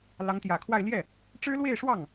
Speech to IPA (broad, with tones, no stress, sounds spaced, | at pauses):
l ɑ˧˥ ŋ t̪ j ä˨˩ kʰ w a˥˧ ɪ̯ l j ɛ˥˩ | ʈ͡ʂ ɻ̩˥ l w e˥˧ ɪ̯ ʂ w ɑ˥˩ ŋ